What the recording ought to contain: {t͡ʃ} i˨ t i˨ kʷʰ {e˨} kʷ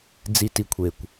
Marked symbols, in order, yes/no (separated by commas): no, yes